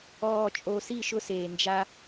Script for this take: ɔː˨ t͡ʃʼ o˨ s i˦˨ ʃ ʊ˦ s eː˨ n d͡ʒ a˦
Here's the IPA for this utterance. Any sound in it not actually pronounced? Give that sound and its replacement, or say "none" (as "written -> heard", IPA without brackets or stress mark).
none